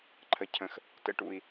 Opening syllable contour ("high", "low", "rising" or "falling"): high